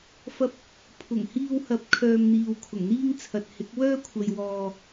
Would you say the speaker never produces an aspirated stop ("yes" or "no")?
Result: no